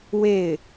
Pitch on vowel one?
falling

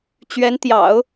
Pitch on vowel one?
rising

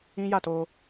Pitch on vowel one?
high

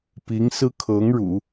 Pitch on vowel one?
rising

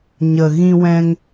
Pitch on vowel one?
low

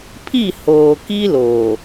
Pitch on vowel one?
falling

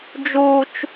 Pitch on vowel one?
high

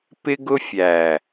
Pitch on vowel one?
high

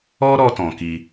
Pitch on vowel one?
high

